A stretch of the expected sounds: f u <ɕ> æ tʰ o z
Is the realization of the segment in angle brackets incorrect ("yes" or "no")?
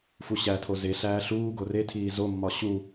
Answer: no